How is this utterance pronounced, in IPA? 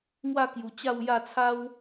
ŋ w a˥˧ k j u˨˩ t͡ɕ a˥˧ w j a˥˧ t͡sʰ a˦ w

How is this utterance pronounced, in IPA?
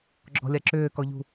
ɡ͡ǁ ɔ̤ lʲ a ǁ ʏː k ɔ ʎ ṳ

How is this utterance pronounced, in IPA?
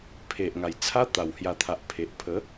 pʰ e˨ ʔ ŋ a˨˩ j t͡sʰ a˦ t̪ a˨˩ w h j a˧ t̪ʰ a˨ ʔ pʰ e˨ ʔ pʰ ə˨˦

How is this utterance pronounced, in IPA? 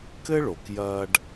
k ɘ˥ ɭ o˩ k j ɐː˧ ɖ

